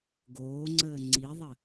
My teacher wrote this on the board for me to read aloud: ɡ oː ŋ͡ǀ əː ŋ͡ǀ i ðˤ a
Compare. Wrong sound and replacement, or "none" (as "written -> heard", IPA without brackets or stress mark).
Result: a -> ə